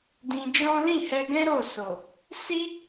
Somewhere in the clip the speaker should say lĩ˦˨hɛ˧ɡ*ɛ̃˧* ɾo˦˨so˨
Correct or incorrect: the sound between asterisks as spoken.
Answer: incorrect: ɛ̃˦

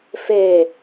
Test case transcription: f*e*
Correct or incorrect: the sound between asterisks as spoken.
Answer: correct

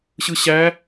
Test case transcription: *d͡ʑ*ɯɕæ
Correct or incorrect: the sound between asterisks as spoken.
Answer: incorrect: ɕ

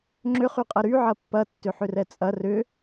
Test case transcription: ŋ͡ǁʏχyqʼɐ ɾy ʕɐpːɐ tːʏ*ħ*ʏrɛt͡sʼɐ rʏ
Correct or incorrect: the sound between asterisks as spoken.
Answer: correct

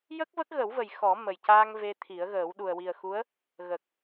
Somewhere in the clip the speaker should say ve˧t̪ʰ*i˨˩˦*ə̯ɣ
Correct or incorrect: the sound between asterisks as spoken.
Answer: correct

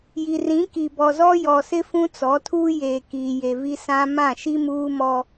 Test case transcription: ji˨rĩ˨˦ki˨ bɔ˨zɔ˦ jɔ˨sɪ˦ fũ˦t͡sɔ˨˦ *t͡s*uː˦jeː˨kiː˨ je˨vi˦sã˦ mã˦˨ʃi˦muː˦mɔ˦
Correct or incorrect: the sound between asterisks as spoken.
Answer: incorrect: tʰ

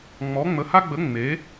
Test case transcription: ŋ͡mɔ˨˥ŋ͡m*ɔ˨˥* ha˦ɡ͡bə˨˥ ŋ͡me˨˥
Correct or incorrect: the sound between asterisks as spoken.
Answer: incorrect: ə˨˥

